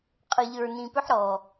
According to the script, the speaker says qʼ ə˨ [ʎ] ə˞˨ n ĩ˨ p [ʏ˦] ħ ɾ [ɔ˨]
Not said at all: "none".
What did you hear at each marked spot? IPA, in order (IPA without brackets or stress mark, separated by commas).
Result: ʎ, ʏ˦, ɔ˨